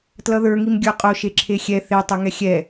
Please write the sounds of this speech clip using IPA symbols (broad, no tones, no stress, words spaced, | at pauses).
tlʌðə˞ŋim ɡʲə˞qʼo ʃeǁʰexʲɛ θetˤɛŋɛ xʲɛ